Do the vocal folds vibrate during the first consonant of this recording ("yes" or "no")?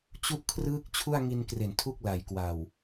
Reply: no